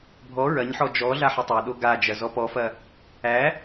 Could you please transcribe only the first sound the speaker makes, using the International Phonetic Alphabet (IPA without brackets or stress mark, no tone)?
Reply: bʱ